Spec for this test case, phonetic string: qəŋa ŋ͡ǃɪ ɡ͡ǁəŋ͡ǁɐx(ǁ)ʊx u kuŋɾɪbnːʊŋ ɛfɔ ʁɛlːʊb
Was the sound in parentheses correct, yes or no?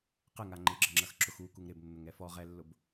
yes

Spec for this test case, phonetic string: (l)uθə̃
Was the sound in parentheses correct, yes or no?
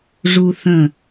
no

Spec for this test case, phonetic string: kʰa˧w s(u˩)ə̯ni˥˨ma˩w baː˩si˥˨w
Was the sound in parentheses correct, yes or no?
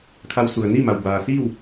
yes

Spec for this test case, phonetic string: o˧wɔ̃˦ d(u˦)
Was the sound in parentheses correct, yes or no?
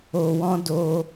no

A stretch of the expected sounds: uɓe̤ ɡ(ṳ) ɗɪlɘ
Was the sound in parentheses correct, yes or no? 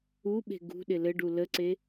yes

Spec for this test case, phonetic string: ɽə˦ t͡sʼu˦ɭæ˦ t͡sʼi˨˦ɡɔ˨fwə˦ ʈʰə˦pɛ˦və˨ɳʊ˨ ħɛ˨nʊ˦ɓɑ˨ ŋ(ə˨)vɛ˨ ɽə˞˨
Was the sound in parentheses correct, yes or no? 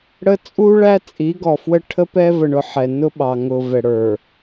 no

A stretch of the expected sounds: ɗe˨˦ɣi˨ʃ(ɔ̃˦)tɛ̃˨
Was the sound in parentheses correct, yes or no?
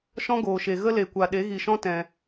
yes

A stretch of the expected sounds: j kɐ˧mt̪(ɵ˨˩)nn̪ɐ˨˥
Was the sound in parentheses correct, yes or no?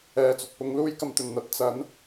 yes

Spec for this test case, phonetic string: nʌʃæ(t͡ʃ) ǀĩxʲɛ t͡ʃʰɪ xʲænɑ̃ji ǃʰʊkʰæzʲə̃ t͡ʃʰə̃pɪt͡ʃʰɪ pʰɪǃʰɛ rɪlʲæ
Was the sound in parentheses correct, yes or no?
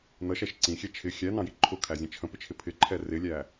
no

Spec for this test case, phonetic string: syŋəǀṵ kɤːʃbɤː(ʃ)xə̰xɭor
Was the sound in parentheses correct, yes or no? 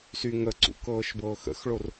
no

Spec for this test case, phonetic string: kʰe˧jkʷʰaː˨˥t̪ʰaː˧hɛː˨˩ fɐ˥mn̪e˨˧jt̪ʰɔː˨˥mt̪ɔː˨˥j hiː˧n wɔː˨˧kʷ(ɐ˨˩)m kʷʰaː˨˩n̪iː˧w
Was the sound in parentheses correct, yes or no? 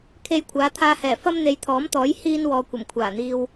yes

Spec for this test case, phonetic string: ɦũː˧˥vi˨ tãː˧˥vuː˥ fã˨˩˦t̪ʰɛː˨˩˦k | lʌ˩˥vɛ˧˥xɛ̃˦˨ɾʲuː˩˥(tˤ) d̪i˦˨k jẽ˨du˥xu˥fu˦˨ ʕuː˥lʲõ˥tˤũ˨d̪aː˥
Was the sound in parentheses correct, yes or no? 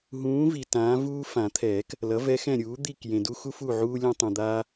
no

